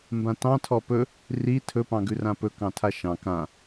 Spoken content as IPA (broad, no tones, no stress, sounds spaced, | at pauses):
m b ã t ɑ̃ tʰ ɔ p ɵ | r i tʰ ɵ p ɑ̃ ɡ ʉ r ã p ɵ k ɑ̃ tʰ a ʃ ɑ̃ k ã